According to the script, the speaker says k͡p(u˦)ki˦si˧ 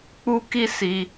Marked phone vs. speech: correct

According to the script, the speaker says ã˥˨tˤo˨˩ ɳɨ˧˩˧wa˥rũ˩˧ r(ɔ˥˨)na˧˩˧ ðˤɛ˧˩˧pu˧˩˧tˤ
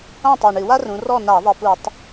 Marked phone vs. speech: correct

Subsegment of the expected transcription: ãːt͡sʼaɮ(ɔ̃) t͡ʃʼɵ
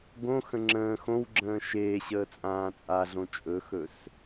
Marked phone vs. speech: incorrect: õ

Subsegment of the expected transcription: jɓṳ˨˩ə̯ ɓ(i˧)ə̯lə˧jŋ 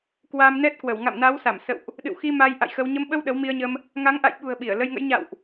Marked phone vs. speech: incorrect: i˧˩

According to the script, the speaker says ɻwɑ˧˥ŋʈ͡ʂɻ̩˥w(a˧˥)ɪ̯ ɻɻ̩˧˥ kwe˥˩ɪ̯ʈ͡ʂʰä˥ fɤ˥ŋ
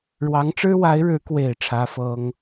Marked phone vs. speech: correct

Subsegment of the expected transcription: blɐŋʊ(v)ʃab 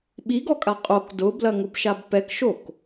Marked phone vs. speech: incorrect: b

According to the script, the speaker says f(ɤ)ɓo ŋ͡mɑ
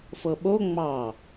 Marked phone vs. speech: correct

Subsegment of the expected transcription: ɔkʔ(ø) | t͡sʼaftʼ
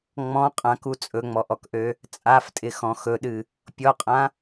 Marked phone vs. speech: correct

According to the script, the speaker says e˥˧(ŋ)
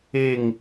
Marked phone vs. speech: correct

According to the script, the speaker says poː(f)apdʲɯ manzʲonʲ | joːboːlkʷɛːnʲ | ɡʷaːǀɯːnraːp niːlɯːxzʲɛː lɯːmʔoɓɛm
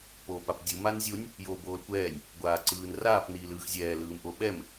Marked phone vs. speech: incorrect: p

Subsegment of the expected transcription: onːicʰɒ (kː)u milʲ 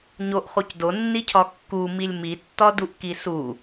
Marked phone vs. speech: correct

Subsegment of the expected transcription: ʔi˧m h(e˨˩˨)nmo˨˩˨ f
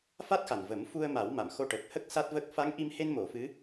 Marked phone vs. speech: incorrect: e˧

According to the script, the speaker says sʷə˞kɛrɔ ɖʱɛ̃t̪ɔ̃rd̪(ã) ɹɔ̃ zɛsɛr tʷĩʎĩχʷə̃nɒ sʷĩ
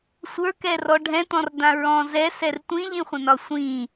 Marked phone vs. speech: correct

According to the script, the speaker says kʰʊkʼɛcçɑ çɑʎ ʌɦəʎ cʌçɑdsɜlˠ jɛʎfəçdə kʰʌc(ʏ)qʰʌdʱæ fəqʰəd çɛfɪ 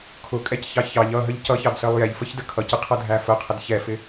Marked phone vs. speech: incorrect: ɪ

